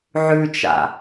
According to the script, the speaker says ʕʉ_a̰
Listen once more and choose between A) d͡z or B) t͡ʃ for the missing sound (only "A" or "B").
B